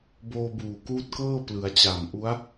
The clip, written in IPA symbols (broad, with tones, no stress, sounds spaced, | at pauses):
b oː˧ b uː˨˩ k uː˦˥ t̚ k ɤː˥˩ p l ɯ˩˦ a̯ t͡ɕ a˨˩ m ʔ u˦˥ a̯